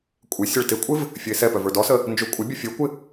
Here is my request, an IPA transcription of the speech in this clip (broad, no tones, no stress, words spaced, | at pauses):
kʷʼɪ sʲɛɭtɪkʷʼɪv | fʲəɪ̯sɛpœ və˞dɔsə | nd͡ʒɵ kʷʼɪbʲə fʲə˞kʷɪ